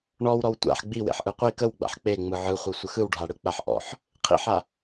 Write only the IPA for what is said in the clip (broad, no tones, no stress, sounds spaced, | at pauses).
ɳ ɔ w ɾ ɔ w tʷ a̰ ħ ɡ͡b i w ḛ ħ ʔ ɯ qʷ i k ə w ɡ͡b a̰ ħ k͡p e ŋ͡m ɯ ʕ ɯ χʷ ɯ sʷ ə x ɯ w ɖʱ a ɽ ɯ k͡p a ħ ʔ ɔ̰ ħ | qʰ ḭ ħ a